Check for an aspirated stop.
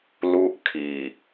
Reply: present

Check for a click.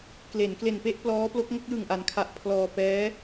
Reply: absent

